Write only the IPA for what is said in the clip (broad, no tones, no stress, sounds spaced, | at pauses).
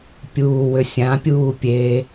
pʲ uː w ʏ sʲ ã pʲ uː pʲ e